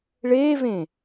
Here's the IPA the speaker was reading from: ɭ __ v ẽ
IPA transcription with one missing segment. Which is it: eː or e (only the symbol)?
eː